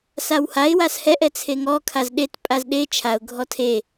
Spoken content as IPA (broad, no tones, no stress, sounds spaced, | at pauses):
s a w h a ɪ̯ w a s h ɛ ʔ ɛ t͡sʰ e ŋ ɔ kʰ a z ɗ e t pʼ a z ɗ e t͡ʃʰ a ʊ̯ ɡʱ ɔ tʰ e